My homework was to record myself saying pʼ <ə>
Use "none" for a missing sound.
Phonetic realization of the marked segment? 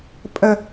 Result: ə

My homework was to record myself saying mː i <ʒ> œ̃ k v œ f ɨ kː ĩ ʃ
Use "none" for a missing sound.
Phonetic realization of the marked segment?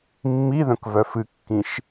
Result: ð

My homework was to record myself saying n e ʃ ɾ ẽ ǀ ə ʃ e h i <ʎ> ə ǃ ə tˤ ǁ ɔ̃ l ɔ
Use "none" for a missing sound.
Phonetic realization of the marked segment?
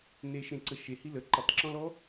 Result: l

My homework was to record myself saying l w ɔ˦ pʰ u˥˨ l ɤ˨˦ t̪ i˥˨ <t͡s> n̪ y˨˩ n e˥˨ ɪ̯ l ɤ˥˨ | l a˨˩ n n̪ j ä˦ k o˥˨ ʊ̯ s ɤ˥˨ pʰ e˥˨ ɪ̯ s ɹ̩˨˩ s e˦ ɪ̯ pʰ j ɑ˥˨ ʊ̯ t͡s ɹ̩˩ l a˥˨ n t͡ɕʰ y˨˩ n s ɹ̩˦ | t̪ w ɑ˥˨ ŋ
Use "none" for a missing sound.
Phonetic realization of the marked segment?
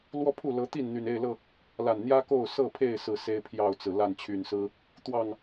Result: n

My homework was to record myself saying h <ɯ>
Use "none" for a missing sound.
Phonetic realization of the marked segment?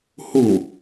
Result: u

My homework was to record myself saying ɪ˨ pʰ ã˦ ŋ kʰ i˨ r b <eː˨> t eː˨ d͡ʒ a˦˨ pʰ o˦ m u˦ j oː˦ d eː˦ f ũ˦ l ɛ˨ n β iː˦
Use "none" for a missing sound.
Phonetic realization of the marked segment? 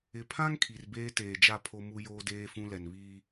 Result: eː˦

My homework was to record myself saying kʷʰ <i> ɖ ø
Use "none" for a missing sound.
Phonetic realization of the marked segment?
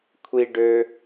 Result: i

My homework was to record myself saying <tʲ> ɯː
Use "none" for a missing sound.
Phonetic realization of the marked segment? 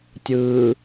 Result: tʲ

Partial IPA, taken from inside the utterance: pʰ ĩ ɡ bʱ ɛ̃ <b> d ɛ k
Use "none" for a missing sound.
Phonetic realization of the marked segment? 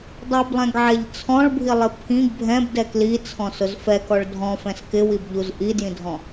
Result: b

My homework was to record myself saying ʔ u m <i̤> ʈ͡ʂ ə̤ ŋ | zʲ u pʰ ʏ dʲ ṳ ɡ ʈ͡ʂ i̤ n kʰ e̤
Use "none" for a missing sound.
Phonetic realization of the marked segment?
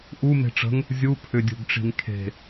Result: e̤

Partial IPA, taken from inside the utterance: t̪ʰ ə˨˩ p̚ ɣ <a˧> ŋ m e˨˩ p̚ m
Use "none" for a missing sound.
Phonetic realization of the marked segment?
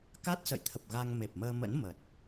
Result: a˧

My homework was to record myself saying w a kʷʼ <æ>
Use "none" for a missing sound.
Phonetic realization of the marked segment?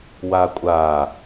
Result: a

